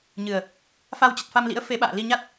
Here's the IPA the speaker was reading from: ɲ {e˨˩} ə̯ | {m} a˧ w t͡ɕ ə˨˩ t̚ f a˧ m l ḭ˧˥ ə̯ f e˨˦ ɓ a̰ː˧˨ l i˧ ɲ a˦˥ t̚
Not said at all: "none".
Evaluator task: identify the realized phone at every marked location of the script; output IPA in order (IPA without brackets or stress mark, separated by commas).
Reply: ɨ˨˩, f